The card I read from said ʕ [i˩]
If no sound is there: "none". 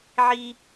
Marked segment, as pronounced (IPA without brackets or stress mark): i˥